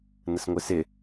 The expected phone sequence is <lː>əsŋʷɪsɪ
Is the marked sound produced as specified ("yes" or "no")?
no